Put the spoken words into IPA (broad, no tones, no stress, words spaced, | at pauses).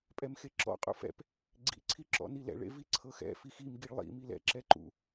pʼɛmxeǁɔ̰ qʼṵfɛ̰p | ɡ͡ǀḭ ǀʰiǁɔ̰nilɛ̰ ɭḛviǀʰɤxɛ̰ fixim ɡiɭlˠḭ milɛ̰ ǁɛǃṵ